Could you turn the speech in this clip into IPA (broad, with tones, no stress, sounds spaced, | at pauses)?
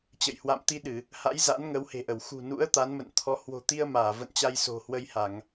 t͡ɕ ə̰˧˨ j h w a̰˧˨ m t̪ i˧ ɗ ɨ˧˩˨ | h a̰˧˥ j z a̰˧˥ n ŋ ə˨˦ w h e̤˨˩ ʔ ə˧˩ w x ṳ˨˩ n ṵ˧˥ ə̯ t̪ a˨˦ n m ə̰˧˨ n t̪ʰ ɔ˨˦ h w o̤˨˩ t̪ i˧ ə̯ m aː˧˩ v ə̰˧˨ n t͡ɕ a˧ j s o̤˨˩ h w ə˧ j h a˧˩˨ ŋ